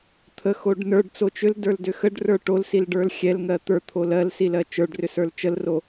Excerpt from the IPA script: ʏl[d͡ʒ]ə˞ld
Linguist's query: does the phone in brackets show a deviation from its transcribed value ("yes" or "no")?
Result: yes